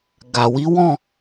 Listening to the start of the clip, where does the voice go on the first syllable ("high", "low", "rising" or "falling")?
low